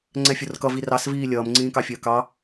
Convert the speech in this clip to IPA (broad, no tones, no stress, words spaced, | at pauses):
ŋ͡ǀɛfʲʊrkʌ virɑs viːlʲʌːm ŋ͡ǀĩːkɑfʲəːkɑ